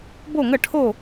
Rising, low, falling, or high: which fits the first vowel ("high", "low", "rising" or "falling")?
falling